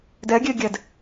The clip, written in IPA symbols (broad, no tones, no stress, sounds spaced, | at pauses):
d ɛ ɡʲ e ɡʲ ɛ d